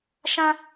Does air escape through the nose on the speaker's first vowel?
yes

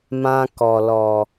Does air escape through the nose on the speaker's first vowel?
yes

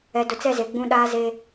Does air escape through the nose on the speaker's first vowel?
no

